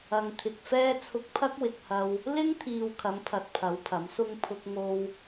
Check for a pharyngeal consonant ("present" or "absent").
absent